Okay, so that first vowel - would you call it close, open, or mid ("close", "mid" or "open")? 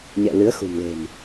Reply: mid